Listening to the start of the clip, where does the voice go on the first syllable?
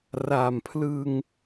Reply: low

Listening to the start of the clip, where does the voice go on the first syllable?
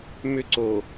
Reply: high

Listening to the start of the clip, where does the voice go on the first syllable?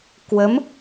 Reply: rising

